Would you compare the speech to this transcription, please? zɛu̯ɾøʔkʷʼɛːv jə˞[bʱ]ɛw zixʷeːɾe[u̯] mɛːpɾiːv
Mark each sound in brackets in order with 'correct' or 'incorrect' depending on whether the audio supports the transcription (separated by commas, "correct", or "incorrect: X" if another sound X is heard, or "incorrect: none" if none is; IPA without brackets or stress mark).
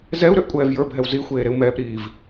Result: correct, correct